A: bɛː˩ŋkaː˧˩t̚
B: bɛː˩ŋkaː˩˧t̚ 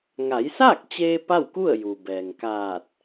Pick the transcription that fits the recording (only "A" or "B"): A